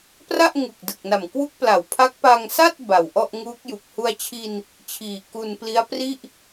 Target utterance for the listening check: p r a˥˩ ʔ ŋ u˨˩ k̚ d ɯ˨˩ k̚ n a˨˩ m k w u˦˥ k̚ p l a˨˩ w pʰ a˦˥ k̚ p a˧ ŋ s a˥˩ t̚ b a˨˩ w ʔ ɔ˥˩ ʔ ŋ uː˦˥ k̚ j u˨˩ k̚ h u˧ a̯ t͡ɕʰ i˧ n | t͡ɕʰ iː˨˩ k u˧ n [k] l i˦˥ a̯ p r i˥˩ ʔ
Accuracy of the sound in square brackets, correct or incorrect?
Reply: incorrect: p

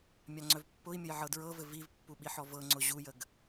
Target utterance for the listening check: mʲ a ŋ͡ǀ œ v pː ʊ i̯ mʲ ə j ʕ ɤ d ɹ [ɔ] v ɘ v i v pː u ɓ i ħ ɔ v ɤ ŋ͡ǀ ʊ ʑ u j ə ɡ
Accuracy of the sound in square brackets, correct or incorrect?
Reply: incorrect: ɤ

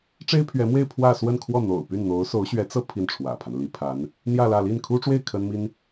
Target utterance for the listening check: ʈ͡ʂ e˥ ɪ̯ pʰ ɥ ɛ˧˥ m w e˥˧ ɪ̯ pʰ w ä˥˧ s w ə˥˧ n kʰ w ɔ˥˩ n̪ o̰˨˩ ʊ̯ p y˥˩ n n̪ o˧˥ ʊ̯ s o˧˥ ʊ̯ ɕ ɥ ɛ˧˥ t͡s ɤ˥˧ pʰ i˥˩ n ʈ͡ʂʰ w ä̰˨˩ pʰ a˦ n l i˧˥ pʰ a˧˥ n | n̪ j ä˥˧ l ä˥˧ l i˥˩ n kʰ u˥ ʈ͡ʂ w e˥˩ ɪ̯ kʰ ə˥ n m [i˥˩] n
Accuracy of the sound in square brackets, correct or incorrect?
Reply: incorrect: i˥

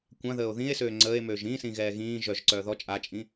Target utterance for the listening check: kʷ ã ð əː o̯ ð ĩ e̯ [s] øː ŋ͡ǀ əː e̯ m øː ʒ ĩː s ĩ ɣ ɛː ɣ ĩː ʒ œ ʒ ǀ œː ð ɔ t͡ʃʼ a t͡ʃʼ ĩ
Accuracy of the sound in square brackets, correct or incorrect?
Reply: correct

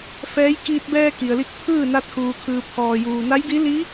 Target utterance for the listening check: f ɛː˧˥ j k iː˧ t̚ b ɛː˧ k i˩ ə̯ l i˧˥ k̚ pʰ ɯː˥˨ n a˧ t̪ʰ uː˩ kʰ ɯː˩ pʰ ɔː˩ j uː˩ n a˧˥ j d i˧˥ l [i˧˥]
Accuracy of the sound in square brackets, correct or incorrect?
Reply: correct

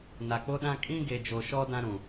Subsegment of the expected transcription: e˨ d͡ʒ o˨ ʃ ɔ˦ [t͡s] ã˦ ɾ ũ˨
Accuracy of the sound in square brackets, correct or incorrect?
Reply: incorrect: d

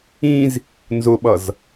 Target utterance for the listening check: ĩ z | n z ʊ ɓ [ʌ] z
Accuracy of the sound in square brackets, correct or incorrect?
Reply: correct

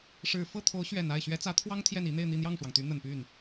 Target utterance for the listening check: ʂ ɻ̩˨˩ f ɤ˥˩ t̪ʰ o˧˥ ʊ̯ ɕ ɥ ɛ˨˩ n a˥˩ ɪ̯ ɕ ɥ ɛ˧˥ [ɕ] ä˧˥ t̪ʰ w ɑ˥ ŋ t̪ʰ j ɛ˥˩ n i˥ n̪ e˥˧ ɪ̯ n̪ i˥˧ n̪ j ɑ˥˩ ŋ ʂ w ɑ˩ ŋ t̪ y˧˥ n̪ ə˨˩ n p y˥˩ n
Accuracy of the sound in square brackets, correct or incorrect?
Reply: incorrect: t͡s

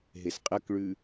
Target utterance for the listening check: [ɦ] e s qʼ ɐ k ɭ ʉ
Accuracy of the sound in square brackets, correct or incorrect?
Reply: correct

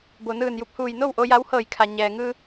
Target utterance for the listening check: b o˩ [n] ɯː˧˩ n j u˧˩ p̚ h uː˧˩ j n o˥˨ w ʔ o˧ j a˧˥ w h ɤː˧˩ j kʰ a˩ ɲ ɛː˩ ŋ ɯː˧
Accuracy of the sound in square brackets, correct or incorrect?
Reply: correct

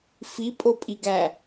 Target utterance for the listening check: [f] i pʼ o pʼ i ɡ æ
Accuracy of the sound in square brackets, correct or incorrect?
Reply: correct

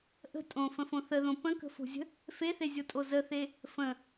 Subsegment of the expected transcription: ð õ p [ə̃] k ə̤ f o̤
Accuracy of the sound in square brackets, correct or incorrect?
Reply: correct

